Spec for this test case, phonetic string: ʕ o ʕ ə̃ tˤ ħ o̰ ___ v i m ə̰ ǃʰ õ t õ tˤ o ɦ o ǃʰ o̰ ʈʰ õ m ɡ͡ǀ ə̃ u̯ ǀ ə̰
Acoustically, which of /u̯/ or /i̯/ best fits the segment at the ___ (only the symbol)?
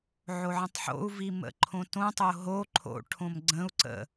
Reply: u̯